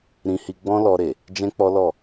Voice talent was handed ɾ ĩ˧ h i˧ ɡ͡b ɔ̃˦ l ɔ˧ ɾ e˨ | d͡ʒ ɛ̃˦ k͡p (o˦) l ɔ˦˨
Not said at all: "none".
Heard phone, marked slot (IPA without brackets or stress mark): ɔ˦